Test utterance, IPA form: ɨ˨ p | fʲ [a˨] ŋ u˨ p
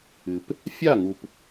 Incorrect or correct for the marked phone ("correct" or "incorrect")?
incorrect